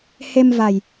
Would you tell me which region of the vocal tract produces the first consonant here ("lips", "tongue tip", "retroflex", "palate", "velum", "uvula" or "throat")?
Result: throat